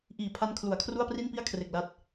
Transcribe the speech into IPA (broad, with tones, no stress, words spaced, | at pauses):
ʔiː˨˩pʰa˧n kʰlu˩˦a̯kʰru˥˩a̯pri˥˩npi˥˩a̯ kʰre˨˩k̚la˦˥t̚